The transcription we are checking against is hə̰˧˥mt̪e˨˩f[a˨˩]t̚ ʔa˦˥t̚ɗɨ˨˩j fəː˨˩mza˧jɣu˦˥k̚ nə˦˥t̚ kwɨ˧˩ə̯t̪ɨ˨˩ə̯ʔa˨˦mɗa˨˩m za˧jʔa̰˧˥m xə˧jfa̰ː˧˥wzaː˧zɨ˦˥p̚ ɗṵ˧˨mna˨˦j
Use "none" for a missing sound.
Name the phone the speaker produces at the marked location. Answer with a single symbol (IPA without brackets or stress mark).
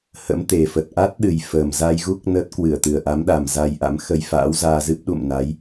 ə˨˩